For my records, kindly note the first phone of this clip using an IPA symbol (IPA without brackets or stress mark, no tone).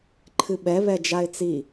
ǃʰ